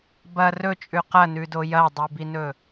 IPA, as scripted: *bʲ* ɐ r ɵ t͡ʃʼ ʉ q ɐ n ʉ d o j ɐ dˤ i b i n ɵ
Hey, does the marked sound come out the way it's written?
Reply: no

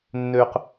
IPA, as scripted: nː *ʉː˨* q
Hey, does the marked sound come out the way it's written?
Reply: no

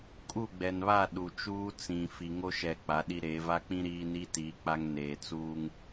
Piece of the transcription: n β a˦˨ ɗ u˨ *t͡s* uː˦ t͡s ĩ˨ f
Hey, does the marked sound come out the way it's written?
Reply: no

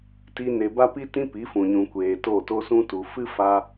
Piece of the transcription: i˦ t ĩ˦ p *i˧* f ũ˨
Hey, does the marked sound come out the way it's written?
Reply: no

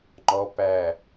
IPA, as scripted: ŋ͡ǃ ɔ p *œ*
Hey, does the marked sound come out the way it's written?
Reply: no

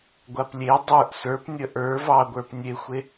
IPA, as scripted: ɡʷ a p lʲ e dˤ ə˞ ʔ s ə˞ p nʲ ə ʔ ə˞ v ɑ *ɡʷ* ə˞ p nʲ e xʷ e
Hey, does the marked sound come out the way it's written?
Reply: yes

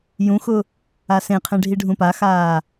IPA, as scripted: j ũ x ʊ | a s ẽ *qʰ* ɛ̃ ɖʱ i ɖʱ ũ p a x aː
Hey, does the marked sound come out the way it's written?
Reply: yes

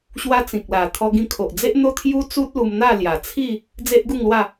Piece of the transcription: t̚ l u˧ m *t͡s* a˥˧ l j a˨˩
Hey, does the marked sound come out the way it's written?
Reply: no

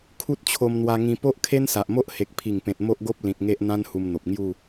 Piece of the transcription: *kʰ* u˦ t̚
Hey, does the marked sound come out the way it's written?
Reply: yes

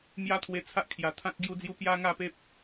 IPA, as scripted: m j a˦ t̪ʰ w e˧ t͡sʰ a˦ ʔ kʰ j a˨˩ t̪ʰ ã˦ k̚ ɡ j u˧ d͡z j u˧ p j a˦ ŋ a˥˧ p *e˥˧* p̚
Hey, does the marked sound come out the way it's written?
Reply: no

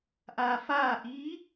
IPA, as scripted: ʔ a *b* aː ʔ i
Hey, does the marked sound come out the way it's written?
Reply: no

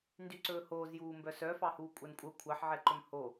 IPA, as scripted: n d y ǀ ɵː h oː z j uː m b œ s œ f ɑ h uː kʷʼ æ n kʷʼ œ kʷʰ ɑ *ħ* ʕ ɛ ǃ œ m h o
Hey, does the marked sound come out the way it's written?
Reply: yes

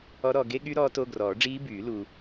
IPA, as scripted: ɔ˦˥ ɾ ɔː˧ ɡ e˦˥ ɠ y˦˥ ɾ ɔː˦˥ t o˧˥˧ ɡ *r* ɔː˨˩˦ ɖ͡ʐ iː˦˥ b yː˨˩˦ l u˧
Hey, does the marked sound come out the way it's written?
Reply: yes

